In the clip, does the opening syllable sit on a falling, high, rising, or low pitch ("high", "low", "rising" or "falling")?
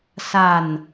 falling